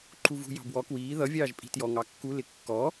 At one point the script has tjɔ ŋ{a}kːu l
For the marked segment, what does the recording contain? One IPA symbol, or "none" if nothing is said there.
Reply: ɑ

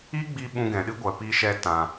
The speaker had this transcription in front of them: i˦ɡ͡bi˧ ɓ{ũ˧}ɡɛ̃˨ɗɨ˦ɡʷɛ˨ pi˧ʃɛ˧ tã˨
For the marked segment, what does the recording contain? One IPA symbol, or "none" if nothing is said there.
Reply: ũ˧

